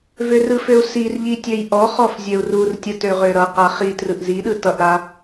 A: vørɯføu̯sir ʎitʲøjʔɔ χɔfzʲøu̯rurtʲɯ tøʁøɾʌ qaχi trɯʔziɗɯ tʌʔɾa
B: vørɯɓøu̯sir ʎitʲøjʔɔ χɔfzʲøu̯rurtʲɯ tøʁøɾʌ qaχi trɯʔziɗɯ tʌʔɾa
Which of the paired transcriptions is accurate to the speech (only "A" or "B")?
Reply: A